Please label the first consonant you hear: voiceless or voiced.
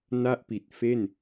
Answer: voiced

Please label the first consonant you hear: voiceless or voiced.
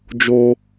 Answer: voiced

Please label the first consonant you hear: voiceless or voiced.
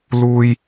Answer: voiced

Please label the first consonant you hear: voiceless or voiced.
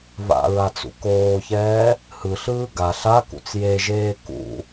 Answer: voiced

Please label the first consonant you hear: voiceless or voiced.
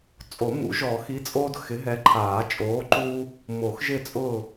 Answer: voiceless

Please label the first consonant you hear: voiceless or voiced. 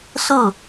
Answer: voiceless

